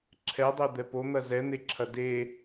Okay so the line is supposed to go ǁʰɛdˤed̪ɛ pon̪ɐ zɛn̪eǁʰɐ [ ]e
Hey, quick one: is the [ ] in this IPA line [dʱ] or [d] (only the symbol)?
d